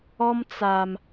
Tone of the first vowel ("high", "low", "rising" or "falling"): high